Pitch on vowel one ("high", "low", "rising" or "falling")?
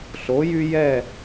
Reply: rising